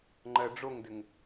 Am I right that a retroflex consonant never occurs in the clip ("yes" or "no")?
no